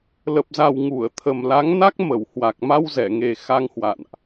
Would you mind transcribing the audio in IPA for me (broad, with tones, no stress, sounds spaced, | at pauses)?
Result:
l ə˨˩ p̚ z a˨˩ w ŋ u˧˩ ə̯ t̪ʰ ə˨˩ m l a˨˦ ŋ n a˦˥ k̚ m ə˧˩ w h w a˨˩ k̚ m a˧ w z ɛ˧˩ ŋ e˨˩ x a˧ ŋ h w a̰˧˨ n ʔ